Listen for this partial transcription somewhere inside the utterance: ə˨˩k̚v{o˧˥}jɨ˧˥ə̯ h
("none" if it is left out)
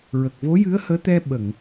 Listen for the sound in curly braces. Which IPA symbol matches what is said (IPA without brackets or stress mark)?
o˧˥